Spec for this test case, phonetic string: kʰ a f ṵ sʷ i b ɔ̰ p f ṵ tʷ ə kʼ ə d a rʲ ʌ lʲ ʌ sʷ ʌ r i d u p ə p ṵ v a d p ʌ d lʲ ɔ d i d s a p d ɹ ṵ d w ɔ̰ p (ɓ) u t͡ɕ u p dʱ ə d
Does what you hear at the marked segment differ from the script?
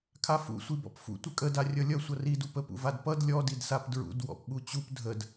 no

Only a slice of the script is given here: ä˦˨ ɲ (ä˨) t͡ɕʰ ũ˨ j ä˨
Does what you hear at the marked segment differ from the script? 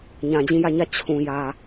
yes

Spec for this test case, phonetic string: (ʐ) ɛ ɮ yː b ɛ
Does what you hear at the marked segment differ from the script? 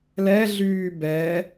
yes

